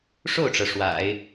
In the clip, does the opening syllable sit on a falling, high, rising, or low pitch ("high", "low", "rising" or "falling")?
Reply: falling